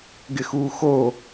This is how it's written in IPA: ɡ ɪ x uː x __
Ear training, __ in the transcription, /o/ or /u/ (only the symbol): o